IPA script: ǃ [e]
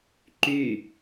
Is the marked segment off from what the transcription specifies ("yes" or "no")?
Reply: yes